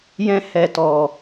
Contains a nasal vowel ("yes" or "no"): yes